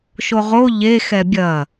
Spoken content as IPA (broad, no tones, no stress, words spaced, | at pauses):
ʃoʁo ʎe xɛbʲɐ